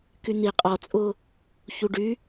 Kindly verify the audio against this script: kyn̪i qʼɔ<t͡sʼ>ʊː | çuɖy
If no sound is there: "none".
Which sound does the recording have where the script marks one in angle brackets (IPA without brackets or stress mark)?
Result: t͡sʼ